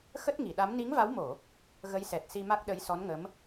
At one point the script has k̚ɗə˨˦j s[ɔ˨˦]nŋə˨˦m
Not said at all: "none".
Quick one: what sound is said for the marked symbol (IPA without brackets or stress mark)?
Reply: ɔ˨˦